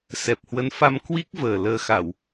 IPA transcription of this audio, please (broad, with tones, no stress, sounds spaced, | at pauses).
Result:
s ɛ˨˩ p̚ h w ə˨˦ n f a˧ m k w i˦˥ k̚ v əː˨˩ l əː˨˩ x a˧˩˨ w